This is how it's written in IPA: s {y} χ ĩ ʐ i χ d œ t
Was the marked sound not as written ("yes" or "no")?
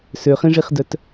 yes